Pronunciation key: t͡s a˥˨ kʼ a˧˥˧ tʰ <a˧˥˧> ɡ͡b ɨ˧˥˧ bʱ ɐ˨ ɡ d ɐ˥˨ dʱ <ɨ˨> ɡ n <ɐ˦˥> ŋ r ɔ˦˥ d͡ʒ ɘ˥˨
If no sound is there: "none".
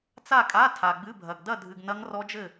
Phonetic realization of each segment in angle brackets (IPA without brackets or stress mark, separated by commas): a˨, ɨ˨, ɐ˦˥